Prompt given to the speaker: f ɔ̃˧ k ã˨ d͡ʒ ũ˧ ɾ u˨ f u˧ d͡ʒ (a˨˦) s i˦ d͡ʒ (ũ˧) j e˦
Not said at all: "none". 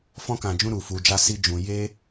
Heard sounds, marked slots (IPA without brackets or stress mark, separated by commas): a˦, ũ˧